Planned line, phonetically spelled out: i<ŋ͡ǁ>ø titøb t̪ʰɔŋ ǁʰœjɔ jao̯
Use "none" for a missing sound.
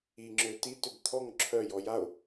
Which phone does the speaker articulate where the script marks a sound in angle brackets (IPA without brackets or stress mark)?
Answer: ŋ͡ǁ